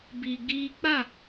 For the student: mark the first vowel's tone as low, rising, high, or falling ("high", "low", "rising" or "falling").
low